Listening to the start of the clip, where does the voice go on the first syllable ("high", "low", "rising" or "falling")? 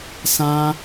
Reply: high